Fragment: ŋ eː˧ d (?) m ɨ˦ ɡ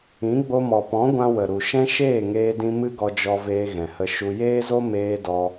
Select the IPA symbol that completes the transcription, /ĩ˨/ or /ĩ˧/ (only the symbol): ĩ˧